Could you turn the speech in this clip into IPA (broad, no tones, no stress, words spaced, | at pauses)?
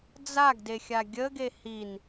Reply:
d͡zaɡdexʲa ɡʲəɡe hin